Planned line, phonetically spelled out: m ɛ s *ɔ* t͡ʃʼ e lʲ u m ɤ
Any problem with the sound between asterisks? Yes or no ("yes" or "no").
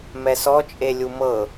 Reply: no